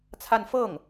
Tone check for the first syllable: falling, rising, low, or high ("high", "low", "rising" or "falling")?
falling